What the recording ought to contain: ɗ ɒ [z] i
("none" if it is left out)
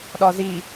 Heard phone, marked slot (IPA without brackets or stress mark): z